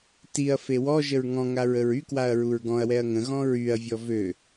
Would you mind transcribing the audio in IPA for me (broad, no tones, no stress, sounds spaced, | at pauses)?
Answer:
t i ɐ̯ f e w ɔ ʒ ə ɹ ŋ ɔ̃ ŋ a ɹ ə ɹ y k w a ɐ̯ ɹ u ɹ ɡ ɔ̃ ɐ̯ w ɛ ɐ̯ ŋ ə̃ ɣ ɔ̃ ɹ y ɐ̯ vʲ ɔ v ø